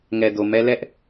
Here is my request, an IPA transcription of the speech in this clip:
ŋ ɛ˨ d o˨ m ɛ˦ l ɛ˦ ʔ

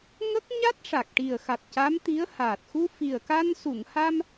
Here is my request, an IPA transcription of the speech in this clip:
ŋ ə˦˥ k̚ ɲ a˦˥ t̚ ʂ a˨˩ k̚ ʈ i˨˩ ə̯ x a˨˩ t̚ c a˧˥ m t̪ i˧˥ ə̯ h aː˨˩ t̚ x u˧ f i˨˩ ə̯ k a˧ n s u˨˩˨ ŋ h a˧ m

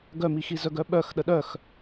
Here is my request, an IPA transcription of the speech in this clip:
ɡ œ m i x i z œ ɡ œ ɓ œ x ɗ ə ɗ œ x

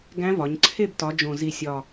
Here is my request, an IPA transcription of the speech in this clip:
ɡ æ̃˧˥ v ɒ˩˧ ɲ ǀʰ e˦˨ b t ɒ˩˧ d͡ʒ õ˨˩ z i˨˩ sʲ ɒ˨˩

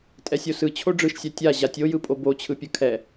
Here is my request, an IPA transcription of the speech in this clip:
tʼ ɛ sʲ o s ɯ t͡ɕʰ o ɖ͡ʐ ɯ ʃ sʲ a tʲ a ʑ a tʲ o j ɯ pʼ o b o t͡ɕʰ ɯ pʲ ɯ kʰ ɛ

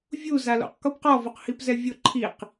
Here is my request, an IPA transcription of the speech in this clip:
vʲ u z a l o̰ q k o p q ɔ v o q h i p z ɛ vʲ ʊ ǃʰ i q

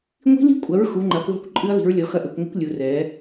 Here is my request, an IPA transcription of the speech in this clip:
ŋʷ i̤˦˥ l i̤˦˥ kʷʼ ɐ˨˦ ɹ x u˨˦ ŋ͡ǃ a˨˦ kʷ ðˤ ṳ˦˥ kʷ ǃʼ ɨ˦˥ ɐ̯ ð i̤˨˦ ɹ lʲ ɔ˨˦ x ɐ˦˥ ʔ e˨˦ kʷ ŋʷ ɨ˦˥ kʷ lʲ u˨˦ r ɛ˨˦

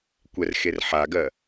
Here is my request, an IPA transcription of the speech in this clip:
kʷ ɛ r x e r ħ a ɡ ɜ

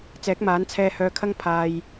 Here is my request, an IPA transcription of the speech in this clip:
t͡s ɛː˨˥ k̚ m aː˨˥ n t͡sʰ ɛː˧ h œː˧ kʰ ɐ˥ ŋ pʰ aː˨ j

